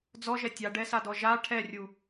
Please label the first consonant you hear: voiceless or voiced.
voiced